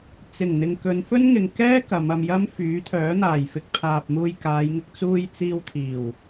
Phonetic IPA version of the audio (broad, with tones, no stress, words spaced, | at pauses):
t͡sɪ˨˩ŋn̪ɪ˨ŋ kɵ˨˧nfɵ˥nŋɪ˨ŋ kɛː˥ kɐ˨˧mɐ˧mjɐ˥m fyː˨˥t̪ʰœː˨˥n̪aː˨˩jfɪ˧k̚ pʰaː˨p̚ muː˧jkaː˨˧jŋɪ˧k̚ t͡suː˧jt͡siː˧wt̪ʰiː˨˩w